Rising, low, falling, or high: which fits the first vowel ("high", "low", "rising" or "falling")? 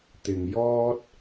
low